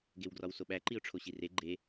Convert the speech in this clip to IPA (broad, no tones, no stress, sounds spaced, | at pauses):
ɡ e w ɡ r ɒ w s o ɓ æ ǃ i ʊ̯ ʈ͡ʂʰ o ɕ i r e ɡ͡ǃ e